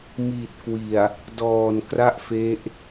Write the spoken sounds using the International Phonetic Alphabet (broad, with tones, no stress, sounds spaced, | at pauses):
m i˨˩ t̚ k w i˨˩ a̯ | d ɔː˨˩ n k r a˥˩ ʔ f e˦˥ ʔ